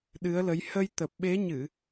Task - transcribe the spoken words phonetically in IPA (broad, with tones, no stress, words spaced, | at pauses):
ɗɨ˨˦ə̯lə˨˦j hə˧j t̪ə˨˩p̚ɓe˨˦ɲɨ˧˩˨